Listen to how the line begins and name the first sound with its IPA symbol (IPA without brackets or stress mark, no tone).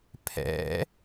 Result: pʰ